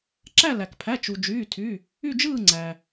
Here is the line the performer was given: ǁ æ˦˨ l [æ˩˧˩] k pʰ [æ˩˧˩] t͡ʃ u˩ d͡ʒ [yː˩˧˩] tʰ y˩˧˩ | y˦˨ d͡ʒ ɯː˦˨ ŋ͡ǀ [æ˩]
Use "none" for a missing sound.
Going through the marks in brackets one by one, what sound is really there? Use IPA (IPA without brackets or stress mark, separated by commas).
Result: æ˩, æ˩˧˩, yː˩˧˩, æ˩